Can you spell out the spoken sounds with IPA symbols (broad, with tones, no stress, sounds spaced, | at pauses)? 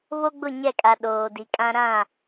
β o˦ ɡ͡b ʊ˦˨ ɲ ɛ˦˨ kʼ a˨ ɗ oː˨ d i˨ kʼ ã˦ ɾ ã˦˨